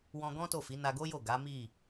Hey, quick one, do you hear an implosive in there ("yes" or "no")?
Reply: no